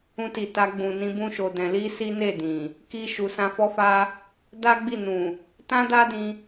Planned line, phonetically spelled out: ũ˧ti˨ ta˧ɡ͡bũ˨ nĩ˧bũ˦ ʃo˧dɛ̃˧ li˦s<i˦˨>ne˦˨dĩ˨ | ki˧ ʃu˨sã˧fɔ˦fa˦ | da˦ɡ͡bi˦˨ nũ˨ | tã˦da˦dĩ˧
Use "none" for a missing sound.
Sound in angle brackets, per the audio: i˦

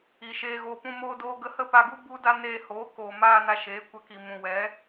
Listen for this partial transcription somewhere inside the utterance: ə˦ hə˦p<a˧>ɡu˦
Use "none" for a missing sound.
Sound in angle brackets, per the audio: a˧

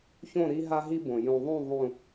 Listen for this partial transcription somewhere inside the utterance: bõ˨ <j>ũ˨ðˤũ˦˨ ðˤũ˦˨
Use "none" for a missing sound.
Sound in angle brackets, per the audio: j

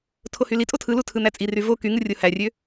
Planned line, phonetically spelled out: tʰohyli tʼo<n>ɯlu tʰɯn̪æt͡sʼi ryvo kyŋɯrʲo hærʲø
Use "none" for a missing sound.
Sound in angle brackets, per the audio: tʰ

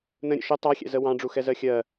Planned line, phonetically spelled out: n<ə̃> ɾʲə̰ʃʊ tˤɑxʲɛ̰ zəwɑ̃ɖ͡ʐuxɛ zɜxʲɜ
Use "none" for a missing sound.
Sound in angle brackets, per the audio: ə̃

